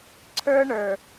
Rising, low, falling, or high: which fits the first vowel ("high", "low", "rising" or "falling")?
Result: high